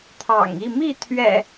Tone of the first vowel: low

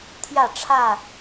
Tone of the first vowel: falling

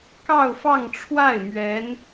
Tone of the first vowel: falling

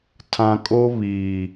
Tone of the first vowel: low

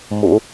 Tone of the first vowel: low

